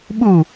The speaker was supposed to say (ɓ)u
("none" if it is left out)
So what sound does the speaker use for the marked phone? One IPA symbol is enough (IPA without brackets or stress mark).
ɓ